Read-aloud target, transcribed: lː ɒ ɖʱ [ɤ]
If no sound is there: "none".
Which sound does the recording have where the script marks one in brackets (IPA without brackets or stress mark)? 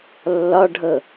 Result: ɤ